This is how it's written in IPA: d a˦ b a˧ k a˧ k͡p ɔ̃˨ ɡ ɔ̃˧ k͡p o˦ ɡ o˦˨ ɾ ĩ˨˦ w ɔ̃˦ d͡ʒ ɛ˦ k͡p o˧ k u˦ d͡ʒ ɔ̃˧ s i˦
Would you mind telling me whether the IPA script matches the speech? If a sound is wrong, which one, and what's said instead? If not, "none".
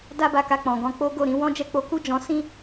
i˦ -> ĩ˦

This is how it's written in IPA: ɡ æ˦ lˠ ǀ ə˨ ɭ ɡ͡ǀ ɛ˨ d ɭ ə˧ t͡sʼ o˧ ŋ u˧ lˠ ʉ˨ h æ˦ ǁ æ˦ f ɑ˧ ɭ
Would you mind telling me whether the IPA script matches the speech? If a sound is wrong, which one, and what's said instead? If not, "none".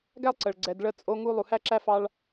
ʉ˨ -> u˨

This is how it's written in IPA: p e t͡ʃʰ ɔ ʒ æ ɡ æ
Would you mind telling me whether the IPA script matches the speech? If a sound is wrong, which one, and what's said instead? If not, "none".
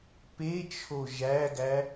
ɔ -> o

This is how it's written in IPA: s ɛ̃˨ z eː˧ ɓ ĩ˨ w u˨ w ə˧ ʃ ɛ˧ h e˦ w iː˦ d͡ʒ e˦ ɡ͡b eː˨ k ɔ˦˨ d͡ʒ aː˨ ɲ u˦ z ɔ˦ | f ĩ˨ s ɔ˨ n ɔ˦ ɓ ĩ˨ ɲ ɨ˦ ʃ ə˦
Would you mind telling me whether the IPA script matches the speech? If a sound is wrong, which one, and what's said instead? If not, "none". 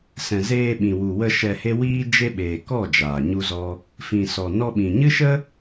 ɡ͡b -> ɓ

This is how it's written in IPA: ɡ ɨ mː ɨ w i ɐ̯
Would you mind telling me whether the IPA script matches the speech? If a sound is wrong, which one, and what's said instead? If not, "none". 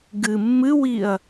none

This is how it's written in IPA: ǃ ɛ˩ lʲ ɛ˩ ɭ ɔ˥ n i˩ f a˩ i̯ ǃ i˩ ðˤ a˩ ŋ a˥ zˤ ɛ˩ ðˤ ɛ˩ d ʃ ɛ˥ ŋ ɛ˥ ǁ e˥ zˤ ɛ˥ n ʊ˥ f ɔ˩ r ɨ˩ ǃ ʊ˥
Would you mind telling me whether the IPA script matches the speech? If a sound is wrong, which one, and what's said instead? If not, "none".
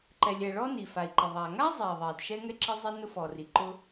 ɨ˩ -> i˩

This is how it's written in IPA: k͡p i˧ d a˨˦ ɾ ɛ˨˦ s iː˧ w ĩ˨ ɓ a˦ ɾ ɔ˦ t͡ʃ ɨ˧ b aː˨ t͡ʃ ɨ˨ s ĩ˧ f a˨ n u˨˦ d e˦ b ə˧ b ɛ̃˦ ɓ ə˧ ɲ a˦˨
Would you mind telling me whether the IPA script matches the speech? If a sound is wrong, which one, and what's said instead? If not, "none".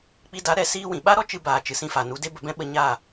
none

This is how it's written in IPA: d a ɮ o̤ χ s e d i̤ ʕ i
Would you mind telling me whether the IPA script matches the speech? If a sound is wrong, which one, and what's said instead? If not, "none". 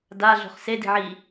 none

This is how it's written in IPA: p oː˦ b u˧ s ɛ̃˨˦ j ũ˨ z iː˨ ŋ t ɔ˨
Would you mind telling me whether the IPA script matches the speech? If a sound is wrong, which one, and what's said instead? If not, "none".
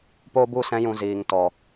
none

